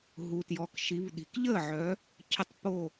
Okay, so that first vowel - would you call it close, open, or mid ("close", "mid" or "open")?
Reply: close